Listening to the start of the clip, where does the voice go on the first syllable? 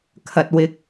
low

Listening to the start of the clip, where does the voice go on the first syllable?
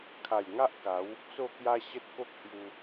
low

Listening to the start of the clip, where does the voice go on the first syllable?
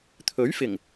rising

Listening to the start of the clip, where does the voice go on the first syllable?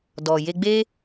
low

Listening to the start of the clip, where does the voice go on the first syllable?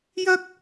high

